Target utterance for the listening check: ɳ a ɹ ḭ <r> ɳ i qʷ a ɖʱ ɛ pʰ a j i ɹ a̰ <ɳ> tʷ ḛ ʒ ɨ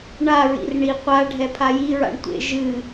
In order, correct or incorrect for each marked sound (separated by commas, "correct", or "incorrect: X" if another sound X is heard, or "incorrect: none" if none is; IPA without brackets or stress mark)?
correct, correct